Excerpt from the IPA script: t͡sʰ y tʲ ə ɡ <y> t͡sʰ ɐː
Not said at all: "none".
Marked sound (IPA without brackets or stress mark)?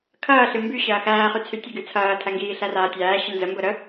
y